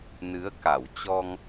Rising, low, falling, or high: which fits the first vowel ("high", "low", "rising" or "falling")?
rising